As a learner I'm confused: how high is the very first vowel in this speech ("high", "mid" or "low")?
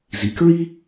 high